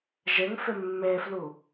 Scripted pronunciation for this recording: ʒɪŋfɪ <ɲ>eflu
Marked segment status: incorrect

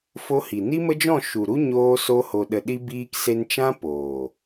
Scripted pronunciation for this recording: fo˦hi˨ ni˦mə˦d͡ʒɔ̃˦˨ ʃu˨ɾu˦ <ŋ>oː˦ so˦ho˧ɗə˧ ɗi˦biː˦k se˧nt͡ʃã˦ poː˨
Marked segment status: incorrect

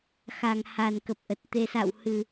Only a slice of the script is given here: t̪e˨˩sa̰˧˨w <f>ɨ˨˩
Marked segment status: incorrect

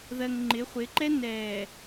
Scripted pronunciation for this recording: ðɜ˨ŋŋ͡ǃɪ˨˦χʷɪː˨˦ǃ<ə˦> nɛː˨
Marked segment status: incorrect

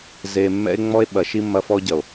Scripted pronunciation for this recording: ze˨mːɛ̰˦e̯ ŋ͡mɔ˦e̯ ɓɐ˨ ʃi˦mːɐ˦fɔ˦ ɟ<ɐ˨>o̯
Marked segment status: correct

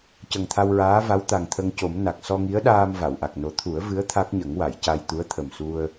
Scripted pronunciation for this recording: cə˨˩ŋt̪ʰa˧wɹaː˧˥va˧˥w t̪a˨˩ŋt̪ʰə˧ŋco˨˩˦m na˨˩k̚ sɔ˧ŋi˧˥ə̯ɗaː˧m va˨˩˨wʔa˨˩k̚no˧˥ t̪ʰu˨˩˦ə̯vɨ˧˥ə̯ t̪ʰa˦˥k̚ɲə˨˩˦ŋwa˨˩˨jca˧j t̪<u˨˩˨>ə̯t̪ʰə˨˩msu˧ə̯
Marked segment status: incorrect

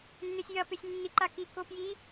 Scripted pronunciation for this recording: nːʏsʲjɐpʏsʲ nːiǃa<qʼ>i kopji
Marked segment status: incorrect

